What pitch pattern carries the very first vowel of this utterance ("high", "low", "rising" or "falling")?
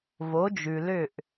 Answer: rising